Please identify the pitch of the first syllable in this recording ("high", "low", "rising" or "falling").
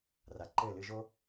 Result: low